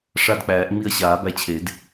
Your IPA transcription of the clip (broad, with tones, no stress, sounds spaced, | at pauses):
ʂ a˦˨ d k͡p æː˨˩˦ ʔ ŋ͡m i˦˨ ɐ̯ ɕ aː˨˩˦ b æ˦˨ t͡ɕʰ e˨˩˦ d